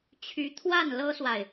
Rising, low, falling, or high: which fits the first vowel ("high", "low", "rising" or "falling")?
rising